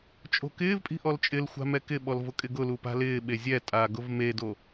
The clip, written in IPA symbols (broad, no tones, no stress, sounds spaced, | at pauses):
t͡ʃʼ o̤ k ɪː v pʼ i̤ ʔ ɔ l t͡ʃʼ ɪ l xʷ a̤ m ɛ k ɪ ɓ ɔ l v ʊ kʼ ɪ ɡ ʊ l u p a̤ l ɪː ɓ e zʲ ɛ tʼ aː ɡ ʊ v m e d o